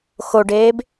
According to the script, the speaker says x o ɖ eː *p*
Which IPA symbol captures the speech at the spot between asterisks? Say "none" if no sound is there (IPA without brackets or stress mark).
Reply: b